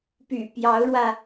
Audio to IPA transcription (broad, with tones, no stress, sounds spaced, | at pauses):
p y̰˨˩ p j ɑ˧˥ ʊ̯ ɻ w ä˧